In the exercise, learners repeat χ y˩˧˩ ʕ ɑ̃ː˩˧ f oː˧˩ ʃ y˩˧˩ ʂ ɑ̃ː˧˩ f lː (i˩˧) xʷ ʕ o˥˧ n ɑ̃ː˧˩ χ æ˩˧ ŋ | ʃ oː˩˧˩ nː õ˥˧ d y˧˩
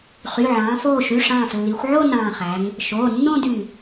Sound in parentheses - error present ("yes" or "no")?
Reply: no